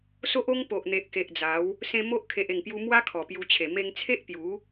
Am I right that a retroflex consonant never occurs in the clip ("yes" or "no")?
yes